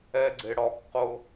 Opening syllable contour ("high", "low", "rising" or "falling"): high